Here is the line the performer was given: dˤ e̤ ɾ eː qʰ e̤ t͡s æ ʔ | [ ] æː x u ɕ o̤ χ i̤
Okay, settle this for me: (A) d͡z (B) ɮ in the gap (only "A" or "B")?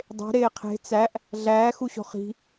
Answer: B